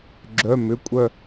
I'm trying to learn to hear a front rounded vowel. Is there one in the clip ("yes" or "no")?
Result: yes